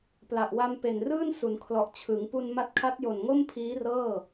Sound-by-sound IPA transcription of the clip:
p l a˨˩ ʔ w a˧ m p e˨˩ n r ɯː˥˩ n s u˩˦ n kʰ l ɔ˨˩ ʔ t͡ɕʰ ɯ˩˦ ŋ p u˧ n m a˦˥ t̚ kʰ a˦˥ t̚ j o˨˩ n ŋ o˥˩ m pʰ iː˦˥ r ɤː˥˩

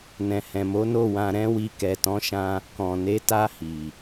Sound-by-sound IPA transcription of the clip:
n ɛ̃˨ h ɛ̃˨ m o˨˦ n o˦˨ w ã˧ ɾ ɛ̃˦ w i˧ k ɛ˨ t ɔ̃˨˦ ʃ ã˧ | k ɔ̃˨ n e˨˦ t a˧ h i˨

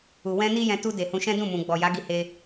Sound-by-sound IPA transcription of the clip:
u˨ w ɛ̃˧ n i˦ j ɛ̃˧ t u˧ d e˨ h ũ˧ ʃ ɛ̃˦ d ũ˦˨ m ũ˨ ɡ͡b ɔ˨ j a˨˦ ɡ i˧ h e˧

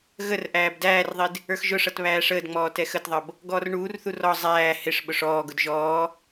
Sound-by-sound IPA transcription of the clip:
ɣ ə r ʔ æː b d æː r ðˤ i d | ə˞ x ʒ ʊ ʂ ʌ t β æː ʂ əː d ŋ͡m ɔː t ɛ x ə t ðˤ ʌ b | ɡ ɔː r ɳ uː r θ u r ɔ zˤ æː h ɪ ʂ ɓ ʊ ʂ ɔː ɡ ʊ d ʒ ɔː

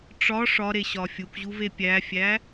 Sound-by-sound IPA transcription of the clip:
ʈ͡ʂ ɒ ʂ ɒ ɾ e ɕ ɒ fʲ u k ʑ u v e pʲ æ fʲ æ

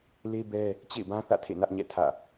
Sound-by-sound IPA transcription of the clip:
l e˦ b ɛ˦ | t͡ɕ ḛ˦˨ ɪ̯ b ã˦ θ ä̰˦˨ tʰ ḛ˦˨ n ä˦ ʔ ɲ ɛ̰˦˨ tʰ ä̰˦˨

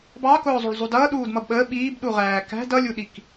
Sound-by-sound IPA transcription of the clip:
b ɑ k ʊː zˤ u ɭ zˤ u d ʌː ɗ uː d m ʌ b ɓ əː ɓ iː b ɗ u ʁ æː k æ̤ d ʌ lʲ u ɗ i k

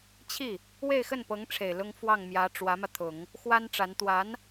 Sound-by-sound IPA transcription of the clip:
t͡ɕʰ i˥˩ | w e˥˧ ɪ̯ x ə˥˩ n p ɤ˧˥ ŋ ʈ͡ʂʰ e˨˩ ɪ̯ l ʊ˥ ŋ f w ɑ˥˩ ŋ m j ä˧˥ ʈ͡ʂ w ä˧˥ m ä˧ t̪ʰ ʊ˨˩˦ ŋ | x w a˥ n ʈ͡ʂ a˧˥ n t̪ w a˧˥ n

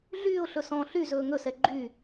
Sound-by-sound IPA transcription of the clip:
ɮ yː ʊ̯ ɬ ɵ s ɔ̃ː ɬ y z ɵː ŋ ɵ s ɛ ɡ͡ǃ y

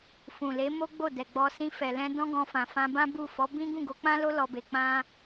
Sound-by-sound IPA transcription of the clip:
f ũ˨ l e˨˦ m o˦ ɡ͡b o˦˨ d ɛ˨ ɡ͡b ɔ˧ s ĩ˧ f ɛ˨ l ɛ̃˧ d ɔ̃˦ ɡ ɔ̃˧ f ã˨ f ã˧ b ã˦ b u˦˨ f ɔ˨˦ b ĩ˦ ɡ ũ˦˨ ɡ o˧ k͡p ã˦ l o˦ l ɔ˧ b e˧ k͡p ã˦

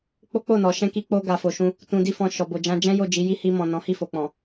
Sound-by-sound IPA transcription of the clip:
k͡p o˦ k͡p o˦˨ n ɔ˨ ʃ ɛ̃˧ k i˧ k͡p o˧ ɡ a˨ f o˨ ʃ ũ˧ | t ũ˧ d i˦ f ɔ̃˧ ʃ ɔ˨ b o˨ d͡ʒ ã˧ d͡ʒ ɛ̃˦ j o˦˨ d͡ʒ i˨˦ j i˦ h i˧ m ɔ̃˨ n ɔ̃˨˦ h i˦˨ f o˨ k͡p ɔ̃˨

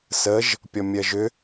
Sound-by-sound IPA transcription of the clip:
s ə ʒ | pʲ ɔ mʲ ɜ ʒ ʏ

